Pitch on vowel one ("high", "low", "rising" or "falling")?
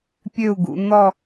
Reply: falling